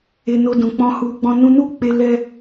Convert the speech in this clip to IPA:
e˧ n o˧ d ũ˨ k͡p ɔ̃˧ h u˧ ɡ͡b ɔ̃˦ n ũ˧ n u˦ k͡p e˧ l ɛ˦

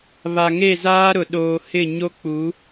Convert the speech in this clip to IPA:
β a˨ ŋ e˦˨ z aː˦ ɾ ʊ˨ ɗ oː˨ h ɪ˦˨ ɲ o˦ k͡p u˨˦

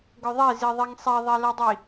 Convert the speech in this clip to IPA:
ɡ œ ðˤ e z i ðˤ i ŋ sˤ ɛ ðˤ e l ɤ dˤ i

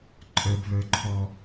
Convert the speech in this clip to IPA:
ǃʼ ə˞ b β ə˞ ǃʰ ɔ

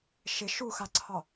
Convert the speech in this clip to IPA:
ʃ ɪ ʃ u x a ǀʰ ɒ

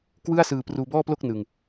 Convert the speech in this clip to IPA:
k w ɯ˥˩ a̯ s ɯː˧ p r uː˧ b ɔː˥˩ p l o˥˩ k̚ n ɯ˧ ŋ

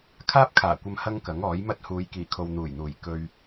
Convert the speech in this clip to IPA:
kʰ aː˥ p̚ kʰ aː˨˩ kʷ ɐ˧ m h ɐ˥ ŋ k ɐ˨˥ ŋ ɔː˨˥ j m ɐ˥ t̚ h uː˨˧ j k iː˨˩ kʰ o˨ w n̪ uː˨˩ j n̪ uː˨˩ j k ɵ˧ ɥ

